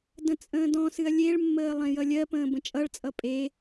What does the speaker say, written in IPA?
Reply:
d ə̃ t͡sʼ ə̃ː d ɔ̃ s ɨ ɐ̯ lʲ e ɭ mː əː lˠ ẽ j ʌ lʲ ɜ p ə̃ː b ə̃ t͡ʃʼ ʌ ɭ t͡sʼ ʌ pʼ e

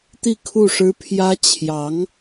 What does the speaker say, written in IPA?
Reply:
t̪ i˥˧ kʰ u˥˩ ʂ ɻ̩˥ pʰ j ä˥ t͡ɕʰ j ɑ˧˥ ŋ

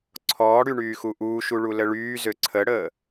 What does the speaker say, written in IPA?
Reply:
ǀʰ ɔː ɽ y ɳ yː x u ʔ uː ʃ u ɭ u l ə ɭ yː z ø ǀʰ ə ɽ əː

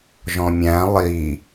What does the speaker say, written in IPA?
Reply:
ʒ ɔ̃ mʲ æ̃ lˠ i

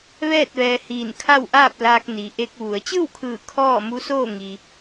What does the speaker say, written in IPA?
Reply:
ʋ ɛː˥˨ t̚ ʋ ɛː˧ h iː˧˩ n kʰ a˥˨ w ʔ aː˥˨ p̚ l aː˧ k̚ n i˩ ʔ e˧ k̚ ʋ u˩˧ ə̯ t͡ɕ ɯː˥˨ w kʰ ɯː˧˩ kʰ ɔː˥˨ m u˧˥ s oː˥˨ ŋ i˩

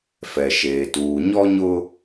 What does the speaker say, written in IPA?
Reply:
f ɛ˨ ʃ eː˨ t uː˨ ɲ ɔ˦ ɲ ʊ˦

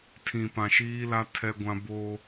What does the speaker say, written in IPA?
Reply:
tʰ ĩ˨ p ã˨ ʃ iː˦ l a˦ tʰ ɛ˦ ɡʷ ã˦ b o˦

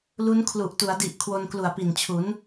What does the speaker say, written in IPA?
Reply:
l u˦˥ n kʰ l u˨˩ ʔ t u˩˦ a̯ d i˨˩ ʔ kʰ w o˧ n k l u˨˩ a̯ p i˨˩ n t͡ɕʰ u˩˦ n

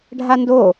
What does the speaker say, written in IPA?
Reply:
ɖʱ a n d o

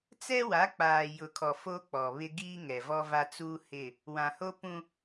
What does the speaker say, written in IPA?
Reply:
t͡s ɛ˦ w a˨˦ k͡p aː˨ j ʊ˨ kʰ ɔ˨ f o˦ k͡p ɔ˨ β ɪ˦ ɡ iː˦ ŋ ɛ˨ v ɔ˦ v a˦ t͡s uː˦ h ɪ˦˨ | w ã˨ h o˦ p ũ˦

